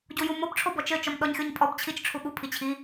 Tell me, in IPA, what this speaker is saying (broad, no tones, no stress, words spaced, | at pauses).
ɟujumob ʈ͡ʂʰobɔt͡ʃɘ t͡ʃɔmɗɔɲxʲoɲpʼɔb t͡ɕʰit͡ʃ ʈ͡ʂʰuɠu pʰit͡ɕʰi